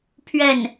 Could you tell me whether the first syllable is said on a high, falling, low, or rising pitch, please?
falling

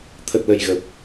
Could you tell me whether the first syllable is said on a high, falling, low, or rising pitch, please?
low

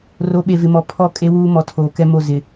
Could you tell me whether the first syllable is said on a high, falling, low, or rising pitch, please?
rising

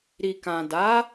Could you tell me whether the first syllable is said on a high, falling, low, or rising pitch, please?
low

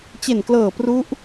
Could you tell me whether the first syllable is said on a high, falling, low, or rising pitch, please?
low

